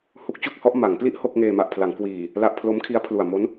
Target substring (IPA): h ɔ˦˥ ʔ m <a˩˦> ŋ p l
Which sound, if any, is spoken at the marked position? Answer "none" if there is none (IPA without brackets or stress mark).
a˩˦